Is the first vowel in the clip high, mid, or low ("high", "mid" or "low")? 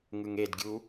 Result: high